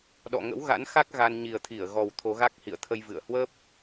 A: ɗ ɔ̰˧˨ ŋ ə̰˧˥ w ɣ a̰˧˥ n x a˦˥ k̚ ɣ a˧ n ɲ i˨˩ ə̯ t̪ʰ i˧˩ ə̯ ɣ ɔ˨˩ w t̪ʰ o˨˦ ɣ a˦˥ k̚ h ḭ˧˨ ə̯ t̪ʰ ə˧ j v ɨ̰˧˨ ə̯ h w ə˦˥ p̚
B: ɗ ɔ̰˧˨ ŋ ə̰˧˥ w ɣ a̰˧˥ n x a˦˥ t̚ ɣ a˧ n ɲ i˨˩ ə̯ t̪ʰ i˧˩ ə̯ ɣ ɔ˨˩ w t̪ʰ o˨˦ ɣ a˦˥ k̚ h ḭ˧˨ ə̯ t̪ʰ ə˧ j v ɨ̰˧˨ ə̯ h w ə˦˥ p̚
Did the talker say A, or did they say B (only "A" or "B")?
A